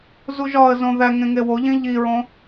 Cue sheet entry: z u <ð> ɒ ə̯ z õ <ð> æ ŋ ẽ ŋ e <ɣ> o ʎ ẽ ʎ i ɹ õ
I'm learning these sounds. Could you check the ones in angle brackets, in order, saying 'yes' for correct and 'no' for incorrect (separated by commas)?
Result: no, yes, no